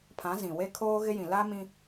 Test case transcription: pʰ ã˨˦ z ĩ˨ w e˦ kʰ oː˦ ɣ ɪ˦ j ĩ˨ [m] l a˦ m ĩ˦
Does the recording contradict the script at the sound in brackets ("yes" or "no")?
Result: yes